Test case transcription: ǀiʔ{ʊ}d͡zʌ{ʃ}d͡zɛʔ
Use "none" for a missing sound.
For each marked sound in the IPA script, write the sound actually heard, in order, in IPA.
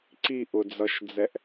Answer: ʊ, ʃ

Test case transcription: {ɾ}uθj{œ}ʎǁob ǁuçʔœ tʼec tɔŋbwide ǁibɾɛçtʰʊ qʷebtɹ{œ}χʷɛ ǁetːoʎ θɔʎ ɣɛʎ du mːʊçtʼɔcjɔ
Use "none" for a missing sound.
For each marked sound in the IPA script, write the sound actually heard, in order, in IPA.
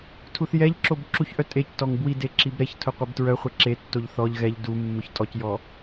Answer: tʰ, ɛ, œ

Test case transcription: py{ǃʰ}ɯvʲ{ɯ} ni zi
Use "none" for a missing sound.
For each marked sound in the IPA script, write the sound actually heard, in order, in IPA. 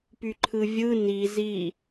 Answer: ǃʰ, ɯ

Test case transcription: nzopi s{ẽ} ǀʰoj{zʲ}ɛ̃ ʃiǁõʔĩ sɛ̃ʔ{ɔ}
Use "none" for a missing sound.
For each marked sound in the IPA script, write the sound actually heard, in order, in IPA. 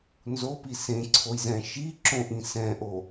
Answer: ẽ, z, o

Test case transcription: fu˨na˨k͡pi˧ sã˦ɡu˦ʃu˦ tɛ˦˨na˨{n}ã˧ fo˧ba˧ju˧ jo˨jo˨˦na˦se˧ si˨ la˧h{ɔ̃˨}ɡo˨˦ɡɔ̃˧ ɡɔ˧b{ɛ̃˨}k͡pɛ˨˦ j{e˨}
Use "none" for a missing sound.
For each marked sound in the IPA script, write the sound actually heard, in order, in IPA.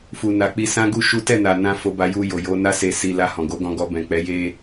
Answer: n, ɔ̃˨, ɛ̃˨, e˧

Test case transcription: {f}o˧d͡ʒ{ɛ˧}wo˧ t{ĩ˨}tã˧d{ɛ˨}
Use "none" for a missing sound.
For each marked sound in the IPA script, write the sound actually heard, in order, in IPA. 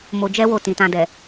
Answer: m, ɛ˦, ĩ˨, ɛ˨

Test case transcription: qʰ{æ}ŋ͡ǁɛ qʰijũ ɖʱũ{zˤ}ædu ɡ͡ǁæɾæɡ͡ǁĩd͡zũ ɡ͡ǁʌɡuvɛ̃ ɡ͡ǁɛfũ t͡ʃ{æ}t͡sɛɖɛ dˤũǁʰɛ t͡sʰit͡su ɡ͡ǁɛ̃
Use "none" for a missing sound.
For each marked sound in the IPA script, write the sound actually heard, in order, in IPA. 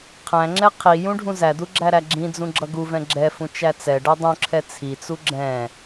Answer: æ̃, z, æ

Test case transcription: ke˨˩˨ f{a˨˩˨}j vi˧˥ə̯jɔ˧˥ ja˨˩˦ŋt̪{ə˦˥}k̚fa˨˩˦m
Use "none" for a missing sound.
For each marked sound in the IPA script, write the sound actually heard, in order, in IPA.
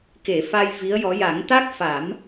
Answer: a˧, a˦˥

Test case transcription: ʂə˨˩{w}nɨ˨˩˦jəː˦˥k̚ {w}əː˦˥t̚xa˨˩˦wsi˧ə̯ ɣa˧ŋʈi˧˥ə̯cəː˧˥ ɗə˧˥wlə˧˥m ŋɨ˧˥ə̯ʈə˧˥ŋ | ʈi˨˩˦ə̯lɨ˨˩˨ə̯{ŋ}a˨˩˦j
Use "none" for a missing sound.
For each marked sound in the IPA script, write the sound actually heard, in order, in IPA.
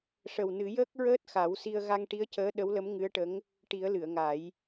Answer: w, ɹ, ŋ

